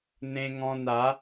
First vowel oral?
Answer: no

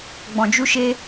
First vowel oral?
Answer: no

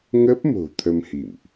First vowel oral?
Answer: yes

